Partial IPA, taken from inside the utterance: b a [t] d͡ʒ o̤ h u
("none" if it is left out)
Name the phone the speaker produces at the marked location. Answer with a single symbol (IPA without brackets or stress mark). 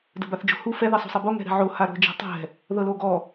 θ